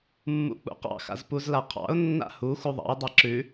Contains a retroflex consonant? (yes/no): no